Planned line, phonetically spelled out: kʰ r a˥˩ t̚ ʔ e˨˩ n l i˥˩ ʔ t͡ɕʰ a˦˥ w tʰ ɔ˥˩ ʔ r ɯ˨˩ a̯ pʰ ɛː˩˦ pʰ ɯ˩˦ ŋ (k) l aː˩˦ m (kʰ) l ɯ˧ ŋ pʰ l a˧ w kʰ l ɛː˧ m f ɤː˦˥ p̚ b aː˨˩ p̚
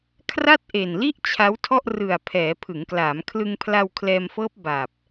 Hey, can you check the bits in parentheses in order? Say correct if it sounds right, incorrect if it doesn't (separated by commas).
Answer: correct, correct